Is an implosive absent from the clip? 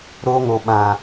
no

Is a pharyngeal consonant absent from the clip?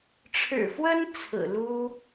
yes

